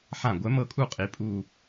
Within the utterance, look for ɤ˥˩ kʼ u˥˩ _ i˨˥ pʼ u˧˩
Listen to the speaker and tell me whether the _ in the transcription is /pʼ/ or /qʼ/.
qʼ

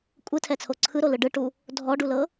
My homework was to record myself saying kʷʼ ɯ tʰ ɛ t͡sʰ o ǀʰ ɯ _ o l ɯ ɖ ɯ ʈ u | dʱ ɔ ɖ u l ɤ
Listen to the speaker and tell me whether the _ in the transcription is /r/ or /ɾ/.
ɾ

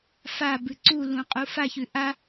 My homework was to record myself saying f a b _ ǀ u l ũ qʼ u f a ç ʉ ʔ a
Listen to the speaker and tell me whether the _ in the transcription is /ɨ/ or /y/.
ɨ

